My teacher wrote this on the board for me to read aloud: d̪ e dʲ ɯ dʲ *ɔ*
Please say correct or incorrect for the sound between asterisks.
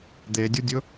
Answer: incorrect